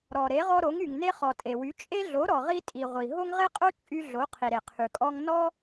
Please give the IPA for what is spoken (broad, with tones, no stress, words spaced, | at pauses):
ɾɔ˩ ɾe˩˥ʁɔ˧ɾo˩˥ŋ y˩ŋne˧χɔ˩ tʼe˩wy˩˥t͡ʃʼe˥ ɮo˩˥ ɾɔ˩ʁi˧tʼi˩ ʁʷi˩ɦo˥ŋʁe˥qʼo˥ t͡ʃʼy˧ ɮo˩˥ qʰi˩ɾe˩qʰy˩kʼɔ˧ŋ nɔ˥